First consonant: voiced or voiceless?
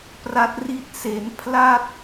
voiceless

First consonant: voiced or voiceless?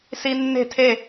voiceless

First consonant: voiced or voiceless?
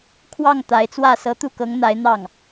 voiceless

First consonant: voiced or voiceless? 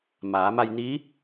voiced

